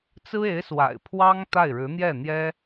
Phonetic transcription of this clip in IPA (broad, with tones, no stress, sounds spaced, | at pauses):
t͡s ɹ̩˥ e˧˥ ɪ̯ s w a̰˨˩ ɪ̯ pʰ w ɑ˥ ŋ t̪ a˥˩ ɪ̯ ɻ ɻ̩˧˥ n̪ j ɛ˥˩ n̪ j ɛ˥